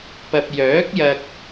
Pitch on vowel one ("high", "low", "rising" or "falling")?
low